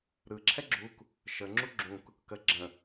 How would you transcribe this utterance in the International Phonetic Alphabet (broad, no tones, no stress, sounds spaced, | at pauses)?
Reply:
ɾ ɯ ǁʰ ɛ ɡ͡ǁ u k | ʃ ə ŋ͡ǁ u ɡ͡ǁ ũ k | k ə ɡ͡ǁ ə̃